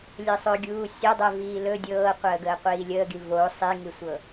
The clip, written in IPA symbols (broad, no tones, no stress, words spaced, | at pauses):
lʲəsˤɵ ɡʲuːsʲɤdˤɛ viːlɵ dʲɤːqʷəːɡəː qʷiːlʲəːɡi vo sˤiŋisʷɤ